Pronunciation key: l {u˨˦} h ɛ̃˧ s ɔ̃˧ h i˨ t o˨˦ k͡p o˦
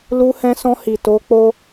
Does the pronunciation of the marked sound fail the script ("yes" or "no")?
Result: yes